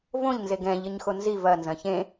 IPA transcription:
v õ ʎ n z e ɡ ɛ̃ ʎ ɘ ɲ x o n z i v ɐ n z ɐ̃ ç ẽ

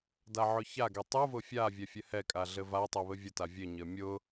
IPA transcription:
d a ʕ ʊ ç a ɡ ɛ tˤ u v ʊ fʲ a vʲ ɛ fʲ ɘ h ɛ kʼ a ɮ ɘ v a tˤ ɛ β ɘ vʲ ʊ t a vʲ ɘ ɲ ɘ mʲ ʊ

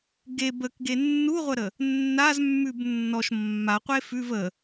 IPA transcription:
ɡ e b ə k ɡ e nː u ʁʷ ə ɾ ə | nː a z mː ʉ b nː ɔ ʃ mː a qʷ e f ʉ v ə

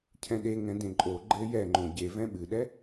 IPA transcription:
cʰ ɛ̃ ɗ e ŋ ɛ̃ d ẽ ǃʼ o ɡ͡ǃ ɘ j ɛ ŋ͡ǃ õ ɟ e v ɛ̃ ɓ ɨ ɗ ɛ

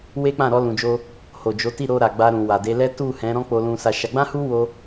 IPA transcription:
w e˦ k͡p ã˦˨ ɾ ɔ˧ l ũ˨ d͡ʒ o˧ | h o˨ d͡ʒ o˨˦ t i˦˨ ɾ o˧ ɾ a˨ ɡ͡b a˧ ɾ ũ˨ w a˨ d e˨˦ l ɛ˦ t u˦˨ h ɛ̃˨˦ ɾ ɔ̃˦ k͡p o˧ l ũ˧ s a˧ ʃ a˧ ɡ͡b ã˦ h u˦ w o˦

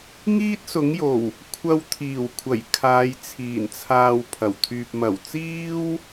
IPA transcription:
ŋ iː˥ t̚ s ʊ˨˥ ŋ j o˨˩ w | kʷʰ ɐ˧ w t̪ʰ iː˨˩ w kʷʰ ɐ˨˩ j kʰ aː˨˧ j t͡sʰ iː˨˩ n t͡sʰ aː˧ w pʰ ɐ˨˩ w t̪ʰ yː˧ p̚ m ɐ˨˩ w t͡s iː˥ w

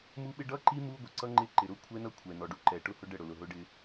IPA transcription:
m u˦ ɓ ɪ˦ ɖ ʌ˦ ǃ i˦ m u˦ ɡʷ ə˨ ǀ ʌ˦ ŋ͡ǃ ɪ˦˨ ǃ ɪ˨ ɾ ʊ˦ kʷʰ ɛ˦ n ʌ˦˨ kʷʰ ɛ˨ n ɔ˨ ɖ u˦ ǃ ɛ˨ ʈ ʊ˦ h ʊ˦ ɖ ə˦˨ ɽ ʊ˨ l ʊ˨ ɦ ʊ˦ ɖ ɪ˦

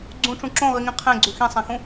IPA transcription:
ɡ͡ǀ ũ ʈ͡ʂ ũ ǁ õ ʁ i ŋ ĩ qʰ ẽ ɡ͡ǀ ʉ x ĩ sˤ ɛ̃ x ũ

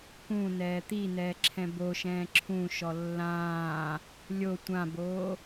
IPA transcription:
k ũ n ɛː t̪ i n ɛː ǁʰ ɛ̃ b o ʃ ɛ̃ː ǁʰ ũ ʃ ɔ lː ãː | lʲ o tʷ ã b oː

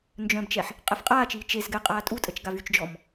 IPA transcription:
n d͡ʒ œ̃ b t͡ʃ ɛ ħ | qʼ ɛ f qʼ aː t͡ʃ iː t͡ʃ e z ɡ ɛ qʼ aː tʼ u tʼ ə t͡ʃ ɡ a v y t͡ʃ d͡ʒ ɔ m

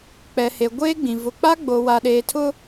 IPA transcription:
k͡p ɛ˨ h e˨ ɡʷ eː˦ ɡ͡b ĩ˨ v ʊ˨ k͡p a˦ ɡ͡b o˨ w a˨ ɗ eː˨ tʰ ʊ˦

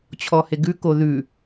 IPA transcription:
t͡ɕʰ ɔ h e ɡ ʉ k o ð ʉ

